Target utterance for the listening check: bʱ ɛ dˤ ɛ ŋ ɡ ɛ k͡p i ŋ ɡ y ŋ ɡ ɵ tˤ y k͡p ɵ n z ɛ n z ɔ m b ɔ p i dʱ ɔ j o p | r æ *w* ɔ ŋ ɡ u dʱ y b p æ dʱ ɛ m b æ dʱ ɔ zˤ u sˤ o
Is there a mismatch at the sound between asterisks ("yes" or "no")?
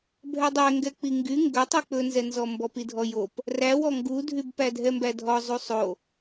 no